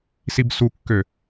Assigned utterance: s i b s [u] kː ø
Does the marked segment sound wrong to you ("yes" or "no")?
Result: no